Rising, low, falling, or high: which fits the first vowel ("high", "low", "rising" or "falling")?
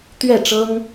falling